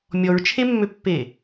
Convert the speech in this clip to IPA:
mʲɔɹt͡ʃʰemːøpːe

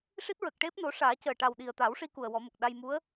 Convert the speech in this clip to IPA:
ʂi˦˥t̚ɹə˨˩k̚ʈe˦˥p̚no˨˩˦ ʂaː˨˩˦cəː˨˩ ʈa˨˩wɗi˨˩ə̯t̪a˨˩˦wʂi˧ ku˨˩ə̯wɔ˨˩˦mə˨˩k̚ɗa˧j mu˧˥ə̯

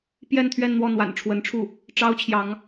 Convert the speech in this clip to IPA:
pjɛ˥˧nt̪ʰɥɛ˥˧nn̪wɔ˥˩ n̪wa̰˨˩nʈ͡ʂʰwə˧˥nʈ͡ʂʰu˥˩ | ʈ͡ʂɑ˥ʊ̯t͡ɕʰjɑ˧˥ŋ

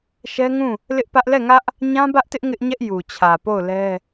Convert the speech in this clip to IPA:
ʃɛ˦ŋũ˦˨ | lɪ˦ʔpä˦ʔ lɛ˦˨ŋä˦ʔ | ɲã˦bä˦ʔtɪ˦ʔ ŋɪ˦ʔɲɛ˦ʔ ju˨t͡ɕʰä˨ po˦˨ʊ̯lɛ˦

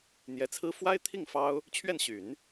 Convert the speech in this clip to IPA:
n̪jɛ˧˥t͡sʰɹ̩˥ fwa˥ɪ̯t̪ʰi˥˩ŋ fɑ˥ʊ̯ | t͡ɕʰɥɛ˥˩nɕy˨˩˦n

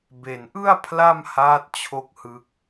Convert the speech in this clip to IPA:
be˨˩nʔɯ˥˩a̯ pʰla˥˩mhaː˦˥t̚ t͡ɕʰo˥˩k̚hɯ˦˥k̚

